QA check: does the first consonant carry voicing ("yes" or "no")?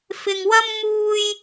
no